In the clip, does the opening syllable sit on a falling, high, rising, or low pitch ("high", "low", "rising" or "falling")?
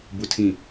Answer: low